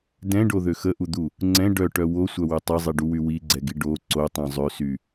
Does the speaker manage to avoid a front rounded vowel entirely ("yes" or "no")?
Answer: no